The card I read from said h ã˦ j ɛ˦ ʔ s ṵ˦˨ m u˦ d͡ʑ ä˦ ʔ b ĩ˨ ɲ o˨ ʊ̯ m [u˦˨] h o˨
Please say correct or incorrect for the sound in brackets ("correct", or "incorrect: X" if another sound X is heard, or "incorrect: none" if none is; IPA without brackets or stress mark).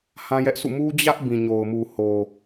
incorrect: u˨